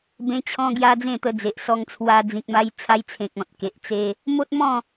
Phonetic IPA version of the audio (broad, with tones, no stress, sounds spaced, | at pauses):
b ẽ˧ t͡ɕʰ ɔ̃˧ ɡ j a˧ d͡z ẽ˥˧ t̪ ə˧ d͡z e˨ ʔ s ɔ˧ ŋ t͡sʰ w a˧ d͡z ĩ˨ k̚ m a˧ j t͡sʰ a˧ j t͡sʰ ẽ˨ k̚ ɔ̃˨ t̚ k e˨ ʔ t͡s e˧ | m o˦ t̚ m ɔ̃˥˧